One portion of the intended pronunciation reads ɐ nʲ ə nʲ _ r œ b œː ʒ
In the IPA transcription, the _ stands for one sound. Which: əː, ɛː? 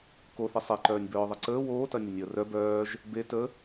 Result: əː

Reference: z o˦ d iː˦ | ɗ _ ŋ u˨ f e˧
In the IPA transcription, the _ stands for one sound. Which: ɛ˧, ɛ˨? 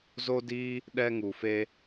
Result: ɛ˧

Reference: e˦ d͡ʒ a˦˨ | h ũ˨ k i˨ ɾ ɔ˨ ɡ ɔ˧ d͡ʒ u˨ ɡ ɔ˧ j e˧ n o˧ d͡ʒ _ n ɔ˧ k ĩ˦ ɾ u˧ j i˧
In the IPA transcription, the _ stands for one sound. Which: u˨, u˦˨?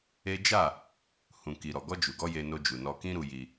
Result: u˨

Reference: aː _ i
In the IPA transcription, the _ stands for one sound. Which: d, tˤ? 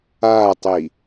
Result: tˤ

